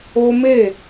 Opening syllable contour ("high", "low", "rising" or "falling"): high